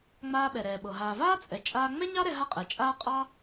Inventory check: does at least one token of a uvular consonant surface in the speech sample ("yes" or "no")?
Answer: yes